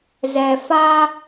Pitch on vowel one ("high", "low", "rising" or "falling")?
low